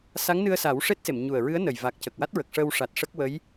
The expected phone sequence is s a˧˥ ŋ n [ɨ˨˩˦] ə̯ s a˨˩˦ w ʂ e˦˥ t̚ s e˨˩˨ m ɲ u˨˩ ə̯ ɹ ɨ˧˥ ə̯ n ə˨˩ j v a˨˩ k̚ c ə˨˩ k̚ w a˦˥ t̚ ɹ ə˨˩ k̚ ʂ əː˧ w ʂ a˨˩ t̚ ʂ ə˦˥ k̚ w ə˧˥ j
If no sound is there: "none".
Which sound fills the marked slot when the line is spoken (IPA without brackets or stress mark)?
ɨ˧